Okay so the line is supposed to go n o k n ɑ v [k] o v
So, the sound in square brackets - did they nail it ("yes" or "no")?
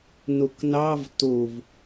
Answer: no